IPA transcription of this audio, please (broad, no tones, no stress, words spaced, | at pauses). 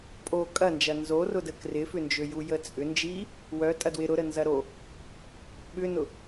pʼo kʼɐnd͡ʒɐ nzorʊdə krɪfʏnd͡ʒø jujət͡sʼʏ nd͡ʒi | wœ tʼɐdwɪ ɾʊɾə nzɐɾo | ɓʏnʊ